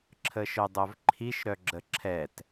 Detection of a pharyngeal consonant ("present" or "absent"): absent